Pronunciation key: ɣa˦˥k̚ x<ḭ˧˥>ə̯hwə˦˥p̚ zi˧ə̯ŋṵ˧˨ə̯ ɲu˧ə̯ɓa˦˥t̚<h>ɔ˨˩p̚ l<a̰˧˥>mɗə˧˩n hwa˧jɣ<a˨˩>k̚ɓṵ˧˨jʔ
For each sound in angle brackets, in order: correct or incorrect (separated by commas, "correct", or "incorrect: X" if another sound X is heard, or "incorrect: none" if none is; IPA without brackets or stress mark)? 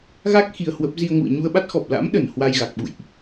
incorrect: i˧, incorrect: x, correct, correct